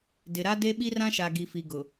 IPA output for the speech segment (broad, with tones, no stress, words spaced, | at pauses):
dɪ˨ɾa˦ de˦ɓi˦rã˦ʃa˨ ɡi˨fi˨ɡʊ˨